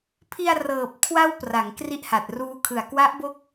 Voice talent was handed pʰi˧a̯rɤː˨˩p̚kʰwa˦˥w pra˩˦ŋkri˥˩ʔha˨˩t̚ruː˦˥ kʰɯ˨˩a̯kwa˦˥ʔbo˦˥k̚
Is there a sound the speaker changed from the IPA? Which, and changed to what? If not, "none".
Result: none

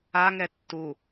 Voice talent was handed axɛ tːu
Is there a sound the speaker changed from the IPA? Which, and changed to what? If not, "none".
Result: x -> ŋ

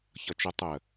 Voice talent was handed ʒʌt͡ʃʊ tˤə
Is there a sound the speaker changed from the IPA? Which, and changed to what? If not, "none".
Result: ʒ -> ç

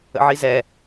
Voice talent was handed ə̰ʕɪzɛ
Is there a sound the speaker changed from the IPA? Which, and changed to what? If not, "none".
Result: ɪ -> i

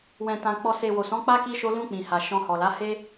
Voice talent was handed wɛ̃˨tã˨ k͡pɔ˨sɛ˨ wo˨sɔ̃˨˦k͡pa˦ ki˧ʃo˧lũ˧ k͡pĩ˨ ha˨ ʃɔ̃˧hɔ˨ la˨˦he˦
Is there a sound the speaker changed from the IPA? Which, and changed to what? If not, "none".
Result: ɛ˨ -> e˨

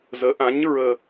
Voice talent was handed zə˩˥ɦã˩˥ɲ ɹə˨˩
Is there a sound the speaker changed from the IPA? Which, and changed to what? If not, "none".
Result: ɦ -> ʔ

